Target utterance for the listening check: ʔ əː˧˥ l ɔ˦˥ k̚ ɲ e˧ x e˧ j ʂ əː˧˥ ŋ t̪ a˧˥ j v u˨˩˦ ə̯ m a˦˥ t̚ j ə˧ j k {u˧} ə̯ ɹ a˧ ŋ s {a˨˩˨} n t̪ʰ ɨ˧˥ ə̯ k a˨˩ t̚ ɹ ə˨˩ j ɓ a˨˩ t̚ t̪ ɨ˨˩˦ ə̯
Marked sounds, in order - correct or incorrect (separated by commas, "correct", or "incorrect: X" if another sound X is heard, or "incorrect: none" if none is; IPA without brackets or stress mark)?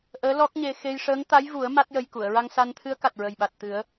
incorrect: u˨˩˨, incorrect: a˧